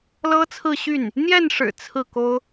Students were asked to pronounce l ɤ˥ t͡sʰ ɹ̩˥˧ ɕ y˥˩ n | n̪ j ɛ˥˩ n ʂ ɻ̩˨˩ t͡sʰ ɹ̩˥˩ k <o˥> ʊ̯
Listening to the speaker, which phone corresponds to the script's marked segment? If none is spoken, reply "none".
o˥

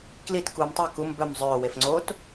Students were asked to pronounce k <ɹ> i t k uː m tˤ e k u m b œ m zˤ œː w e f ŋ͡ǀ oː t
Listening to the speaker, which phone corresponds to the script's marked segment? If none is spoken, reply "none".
l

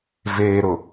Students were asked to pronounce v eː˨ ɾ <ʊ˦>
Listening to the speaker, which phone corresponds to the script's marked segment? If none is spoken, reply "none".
ʊ˨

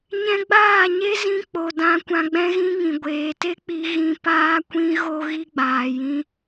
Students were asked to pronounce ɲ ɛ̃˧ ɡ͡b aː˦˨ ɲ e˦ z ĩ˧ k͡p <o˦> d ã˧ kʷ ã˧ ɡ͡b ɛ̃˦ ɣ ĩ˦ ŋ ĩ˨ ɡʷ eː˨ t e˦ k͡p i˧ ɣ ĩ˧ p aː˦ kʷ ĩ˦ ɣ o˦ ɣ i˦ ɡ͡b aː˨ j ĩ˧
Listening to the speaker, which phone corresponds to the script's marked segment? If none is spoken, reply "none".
o˨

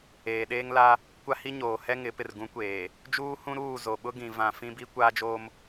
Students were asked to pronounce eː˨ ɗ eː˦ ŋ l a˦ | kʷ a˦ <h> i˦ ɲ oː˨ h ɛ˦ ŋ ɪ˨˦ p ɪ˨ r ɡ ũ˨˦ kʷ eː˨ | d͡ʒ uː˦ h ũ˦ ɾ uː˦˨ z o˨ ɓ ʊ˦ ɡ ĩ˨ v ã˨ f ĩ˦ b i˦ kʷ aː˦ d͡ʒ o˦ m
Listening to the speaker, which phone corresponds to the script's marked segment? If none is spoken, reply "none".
h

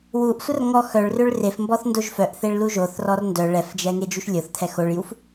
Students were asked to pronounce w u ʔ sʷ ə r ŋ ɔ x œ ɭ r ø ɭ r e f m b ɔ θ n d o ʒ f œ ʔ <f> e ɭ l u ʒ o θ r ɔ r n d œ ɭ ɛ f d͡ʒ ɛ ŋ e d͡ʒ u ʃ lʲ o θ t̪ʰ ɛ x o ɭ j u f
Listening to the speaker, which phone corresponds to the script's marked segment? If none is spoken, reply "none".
θ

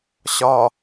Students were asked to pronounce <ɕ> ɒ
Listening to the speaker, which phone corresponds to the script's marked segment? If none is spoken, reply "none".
ɕ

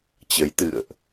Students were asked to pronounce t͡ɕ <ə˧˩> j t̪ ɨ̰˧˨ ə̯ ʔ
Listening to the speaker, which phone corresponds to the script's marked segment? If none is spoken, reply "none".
ə˨˦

